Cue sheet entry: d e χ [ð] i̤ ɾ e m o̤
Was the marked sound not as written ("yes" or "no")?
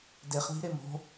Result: no